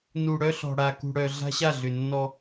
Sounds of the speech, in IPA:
n u˨ ɽ œ˦ ɬ ɔ̤˨ ɽ a˨ k ṳ˨ ɽ œ˨ ɮ a̤˦ ɕ a˦˨ ɮ ʏ˨ nː ɔ˦

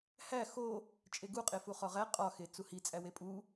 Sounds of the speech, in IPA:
h æ x o | t͡ʃʼ e ɡ u qʼ e f u χ ɒ ʁ æ qʼ ɒ x e t͡s u h i t͡sʼ æ w e pʼ u

